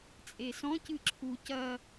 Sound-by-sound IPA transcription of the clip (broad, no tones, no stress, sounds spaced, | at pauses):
t͡sʼ e s ɔ̃ c ɨ ǁʰ u c ɐ